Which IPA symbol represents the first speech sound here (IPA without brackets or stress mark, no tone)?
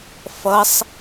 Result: f